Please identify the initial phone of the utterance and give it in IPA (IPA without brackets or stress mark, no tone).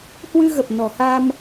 h